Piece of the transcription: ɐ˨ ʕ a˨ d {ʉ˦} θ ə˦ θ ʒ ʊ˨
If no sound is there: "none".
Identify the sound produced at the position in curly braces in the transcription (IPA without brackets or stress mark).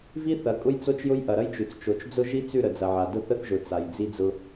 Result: ʊ˦